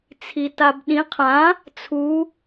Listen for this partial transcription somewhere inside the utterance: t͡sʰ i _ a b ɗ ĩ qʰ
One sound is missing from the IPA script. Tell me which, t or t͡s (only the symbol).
t